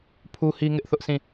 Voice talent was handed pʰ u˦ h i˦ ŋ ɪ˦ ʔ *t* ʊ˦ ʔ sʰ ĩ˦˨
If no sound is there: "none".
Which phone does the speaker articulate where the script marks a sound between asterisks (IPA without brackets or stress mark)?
θ